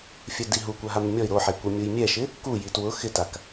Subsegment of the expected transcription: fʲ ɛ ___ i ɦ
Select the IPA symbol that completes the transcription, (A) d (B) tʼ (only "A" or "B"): A